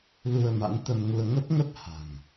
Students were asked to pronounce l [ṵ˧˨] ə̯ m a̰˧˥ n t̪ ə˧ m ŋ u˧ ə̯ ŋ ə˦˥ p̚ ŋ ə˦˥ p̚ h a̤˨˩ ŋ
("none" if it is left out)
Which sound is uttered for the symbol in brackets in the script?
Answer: u˧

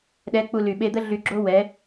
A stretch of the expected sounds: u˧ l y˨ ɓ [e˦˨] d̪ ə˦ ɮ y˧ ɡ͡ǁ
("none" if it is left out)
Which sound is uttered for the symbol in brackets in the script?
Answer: e˧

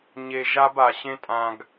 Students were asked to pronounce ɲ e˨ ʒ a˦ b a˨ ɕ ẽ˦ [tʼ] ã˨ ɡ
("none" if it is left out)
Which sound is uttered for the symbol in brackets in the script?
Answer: tʼ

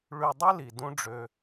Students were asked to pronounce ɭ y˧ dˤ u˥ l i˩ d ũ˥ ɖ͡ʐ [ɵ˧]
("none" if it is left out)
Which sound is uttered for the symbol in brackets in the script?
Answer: ø˧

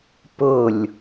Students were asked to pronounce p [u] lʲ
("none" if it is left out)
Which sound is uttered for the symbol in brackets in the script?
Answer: ʊ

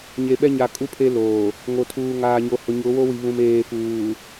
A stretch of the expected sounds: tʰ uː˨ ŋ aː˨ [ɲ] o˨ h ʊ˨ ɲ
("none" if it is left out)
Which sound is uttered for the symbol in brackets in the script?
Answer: ɲ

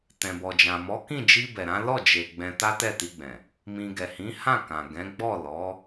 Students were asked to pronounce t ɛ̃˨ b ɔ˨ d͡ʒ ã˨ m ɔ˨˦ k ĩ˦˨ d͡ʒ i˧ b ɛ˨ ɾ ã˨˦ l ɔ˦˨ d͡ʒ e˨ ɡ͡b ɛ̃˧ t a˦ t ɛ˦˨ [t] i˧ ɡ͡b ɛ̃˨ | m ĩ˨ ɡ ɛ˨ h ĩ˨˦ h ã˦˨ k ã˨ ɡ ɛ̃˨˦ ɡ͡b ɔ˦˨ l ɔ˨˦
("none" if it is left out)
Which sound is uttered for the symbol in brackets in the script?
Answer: t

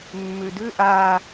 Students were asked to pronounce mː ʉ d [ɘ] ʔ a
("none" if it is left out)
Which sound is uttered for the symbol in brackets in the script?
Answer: ʉ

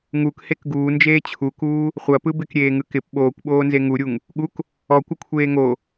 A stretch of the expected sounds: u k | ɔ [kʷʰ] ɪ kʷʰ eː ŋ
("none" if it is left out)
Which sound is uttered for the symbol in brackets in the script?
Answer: kʷ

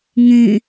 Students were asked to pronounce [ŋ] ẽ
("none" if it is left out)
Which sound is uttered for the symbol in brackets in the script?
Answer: ŋ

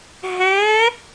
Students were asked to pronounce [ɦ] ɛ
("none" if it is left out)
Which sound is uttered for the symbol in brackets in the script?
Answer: ɦ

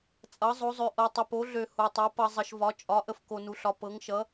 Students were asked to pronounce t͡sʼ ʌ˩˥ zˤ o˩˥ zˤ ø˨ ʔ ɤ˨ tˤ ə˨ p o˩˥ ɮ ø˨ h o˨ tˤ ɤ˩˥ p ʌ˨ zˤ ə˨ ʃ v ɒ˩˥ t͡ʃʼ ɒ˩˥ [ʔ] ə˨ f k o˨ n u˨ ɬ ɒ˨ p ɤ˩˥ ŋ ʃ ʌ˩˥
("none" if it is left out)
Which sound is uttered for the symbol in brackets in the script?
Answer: ʔ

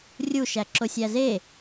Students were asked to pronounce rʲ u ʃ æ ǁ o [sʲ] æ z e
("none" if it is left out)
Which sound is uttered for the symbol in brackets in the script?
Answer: sʲ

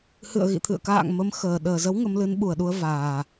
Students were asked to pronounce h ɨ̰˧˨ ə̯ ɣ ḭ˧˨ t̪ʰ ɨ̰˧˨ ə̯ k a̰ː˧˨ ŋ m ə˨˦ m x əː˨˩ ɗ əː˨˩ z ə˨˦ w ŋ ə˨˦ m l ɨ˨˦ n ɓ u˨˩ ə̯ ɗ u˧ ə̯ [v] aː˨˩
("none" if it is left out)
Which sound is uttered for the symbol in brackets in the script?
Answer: v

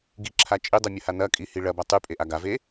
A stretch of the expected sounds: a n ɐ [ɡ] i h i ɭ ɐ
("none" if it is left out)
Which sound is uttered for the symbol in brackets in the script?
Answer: kʼ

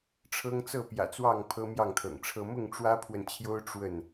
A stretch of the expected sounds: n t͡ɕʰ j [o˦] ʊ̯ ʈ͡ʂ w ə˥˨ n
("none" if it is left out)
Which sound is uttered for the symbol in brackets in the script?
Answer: o˦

